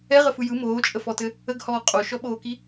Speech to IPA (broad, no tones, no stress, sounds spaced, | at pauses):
ɛ ʁ ə f ɯ j ɯ m oː t͡ʃʼ ə f ɔ t ɘ | ə ɡ h ɔː qʼ o ʃ ɔ ɓ oː k i